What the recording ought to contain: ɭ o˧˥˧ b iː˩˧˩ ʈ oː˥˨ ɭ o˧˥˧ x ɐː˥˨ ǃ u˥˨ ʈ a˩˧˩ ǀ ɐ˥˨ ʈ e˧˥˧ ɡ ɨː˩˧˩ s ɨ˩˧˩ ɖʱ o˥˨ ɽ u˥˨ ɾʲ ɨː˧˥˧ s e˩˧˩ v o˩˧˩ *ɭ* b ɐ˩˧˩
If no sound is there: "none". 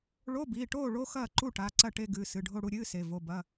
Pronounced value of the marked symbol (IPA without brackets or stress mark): none